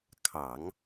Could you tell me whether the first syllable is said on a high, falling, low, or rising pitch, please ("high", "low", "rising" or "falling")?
low